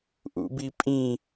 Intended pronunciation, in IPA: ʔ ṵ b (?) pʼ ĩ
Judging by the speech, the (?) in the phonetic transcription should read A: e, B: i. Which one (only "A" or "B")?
B